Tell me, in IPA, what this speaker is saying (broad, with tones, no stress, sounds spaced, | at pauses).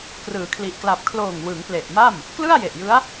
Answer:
k r ɯː˩˦ kʰ l i˨˩ ʔ k l a˨˩ p̚ kʰ l oː˨˩ ŋ w ɯ˩˦ ŋ p l e˨˩ ʔ m a˥˩ m | k l ɯ˥˩ a̯ j e˨˩ ʔ j ɯ˦˥ a̯